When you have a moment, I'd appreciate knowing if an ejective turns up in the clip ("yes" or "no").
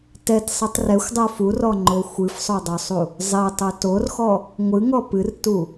no